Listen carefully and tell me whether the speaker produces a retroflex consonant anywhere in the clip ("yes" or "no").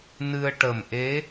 yes